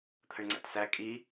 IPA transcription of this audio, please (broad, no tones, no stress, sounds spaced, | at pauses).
t̪ʰ ə ɳ ŋ͡ǀ æ̰ t s æ kʼ i